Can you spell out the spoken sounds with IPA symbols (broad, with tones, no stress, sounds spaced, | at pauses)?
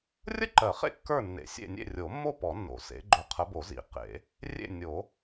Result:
rʲ ə˥˨ ǃ ɜ˨˩˦ χ ḛ˥˨ kː ə˞˥˨ nː ḛ˨˦ sʲ ḛ˥˨ nʲ ḛ˥˨ rʲ o˨˩˦ mː o˥˨ p ɔ˨˩˦ nː o̰˨˩˦ s ḛ˨˦ ɡ͡ǃ o˨˩˦ qʰ ə˨˦ b o˨˩˦ z ḭ˨˩˦ q ḛ˨˩˦ | rʲ ḛ˥˨ nʲ o˨˩˦